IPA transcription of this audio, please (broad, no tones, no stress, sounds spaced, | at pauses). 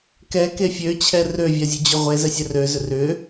k ɛ k e fʲ ø t͡ɕʰ ɛ r ø vʲ a zʲ ø d͡ʑ ʏ ʁʷ e z ɛ sʲ ɛ r ø z ʏ r ʏ